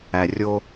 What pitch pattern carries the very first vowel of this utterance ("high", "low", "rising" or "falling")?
low